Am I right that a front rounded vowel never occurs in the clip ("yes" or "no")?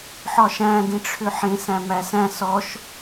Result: no